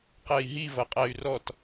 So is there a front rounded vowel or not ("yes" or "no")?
yes